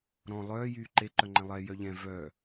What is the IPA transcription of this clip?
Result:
ɾ ɔ̃ lˠ œː j yː ǃ e ǃ œ ŋ͡ǃ ɛ̃ lˠ ɛ j œ ʎ ɛ̃ v œ

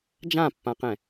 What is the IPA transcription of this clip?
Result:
d͡ʒ ã pː ã q ɛ̃

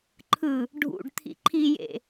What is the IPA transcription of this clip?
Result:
ǃʰ ɯ | ɖʱ ṵ ɖ t̪ʰ ḭ ǃʰ i j ḛ

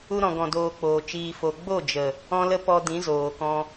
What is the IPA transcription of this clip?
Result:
u˧ ɾ ɔ̃˨ ɡ ɔ̃˨ d oː˨ k͡p oː˨ t͡ʃ iː˨ f o˨ ɡ͡b o˦˨ d͡ʒ ə˨ | ɔ̃˧ l ə˧ p ɔ˧ d ĩ˨˦ z oː˨ k ɔ̃˧

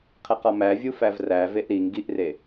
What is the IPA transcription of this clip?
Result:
qʰ e q ɒ m æ vʲ u f æ v r æ v e ʔ ɾ i ŋ ɡ i ʔ r e

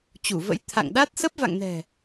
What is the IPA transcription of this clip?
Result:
t͡ɕ u˧˩ v ə̰˧˥ j t̪ʰ a̰˧˨ ŋ ɗ a˦˥ t̚ s ə˦˥ p̚ v a̰˧˨ ŋ n ɛ̤˨˩

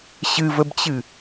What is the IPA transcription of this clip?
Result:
ɕ ɨ v ə b t͡ɕ ɨ

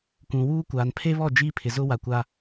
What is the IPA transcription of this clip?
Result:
kʷ ũ˨ w uː˦ kʷ aː˨ n pʰ e˦ β ɔ˦˨ d͡ʒ iː˦ pʰ ɪ˨ z ʊ˦ w a˨ kʷ a˦

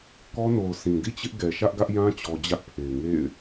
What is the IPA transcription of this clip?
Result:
k ɔ˦ n o˨ ʊ̯ s ĩ˨ d ḭ˦˨ t͡ɕ ɪ˦ ʔ ɡ ɛ˨ ʃ ä˦ ʔ ɡ ä˦ ʔ j ã˦ t͡ɕ ɔ˨ d͡ʑ ä˦ ʔ pʰ e˨ ɪ̯ ŋ ḛ˦˨ ɪ̯

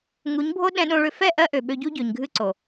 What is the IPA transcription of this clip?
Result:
ŋ u˨˦ ɲ bʱ o˦ ɗ ɛ̃˧ ɗ õ˧ ɭ ʏ˧ f ɛ˦˨ ʔ ɜ˦ ʔ ø˨ ɓ ø˧ ɟ u˦ ɟ ø˨ ɲ ɡʱ ɨ˦ ǀ o˨

